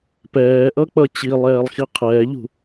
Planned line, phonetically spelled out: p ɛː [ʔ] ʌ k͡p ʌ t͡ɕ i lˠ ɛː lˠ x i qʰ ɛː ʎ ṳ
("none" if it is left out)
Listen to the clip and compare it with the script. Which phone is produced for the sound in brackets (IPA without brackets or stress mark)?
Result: ʔ